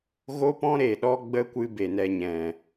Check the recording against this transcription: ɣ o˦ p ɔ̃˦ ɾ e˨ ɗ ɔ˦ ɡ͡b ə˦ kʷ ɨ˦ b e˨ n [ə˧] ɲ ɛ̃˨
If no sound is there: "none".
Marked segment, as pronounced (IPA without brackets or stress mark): ɛ˧